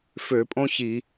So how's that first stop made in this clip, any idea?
ejective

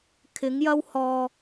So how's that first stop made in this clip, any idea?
aspirated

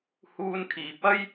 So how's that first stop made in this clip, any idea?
aspirated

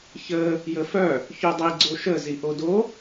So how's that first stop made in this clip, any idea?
plain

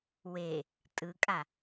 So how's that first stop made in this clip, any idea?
ejective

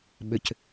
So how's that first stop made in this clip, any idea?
implosive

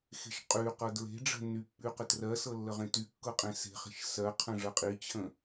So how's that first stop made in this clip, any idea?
ejective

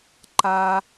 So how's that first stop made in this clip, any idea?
click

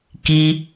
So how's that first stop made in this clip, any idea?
plain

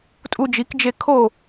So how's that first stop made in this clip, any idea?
ejective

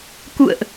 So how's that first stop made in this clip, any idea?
plain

